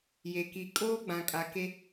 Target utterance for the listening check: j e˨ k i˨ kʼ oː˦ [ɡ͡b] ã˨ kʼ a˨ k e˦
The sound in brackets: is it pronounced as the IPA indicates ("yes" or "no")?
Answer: yes